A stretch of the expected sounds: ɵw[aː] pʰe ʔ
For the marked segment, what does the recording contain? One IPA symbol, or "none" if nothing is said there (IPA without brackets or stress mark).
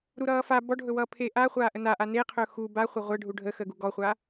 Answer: ʌː